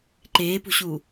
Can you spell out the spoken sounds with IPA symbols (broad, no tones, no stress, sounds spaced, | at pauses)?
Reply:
ǃ eː p ṳ ɕ uː